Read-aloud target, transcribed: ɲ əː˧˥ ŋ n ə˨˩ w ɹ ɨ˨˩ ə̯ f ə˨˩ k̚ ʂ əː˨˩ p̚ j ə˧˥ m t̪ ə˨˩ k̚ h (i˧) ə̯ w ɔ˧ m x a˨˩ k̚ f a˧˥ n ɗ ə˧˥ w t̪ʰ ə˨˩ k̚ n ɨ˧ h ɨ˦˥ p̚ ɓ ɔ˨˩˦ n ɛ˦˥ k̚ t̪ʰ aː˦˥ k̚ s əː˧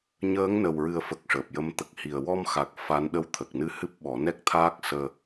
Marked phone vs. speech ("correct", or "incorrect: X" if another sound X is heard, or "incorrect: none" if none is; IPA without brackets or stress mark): incorrect: i˨˩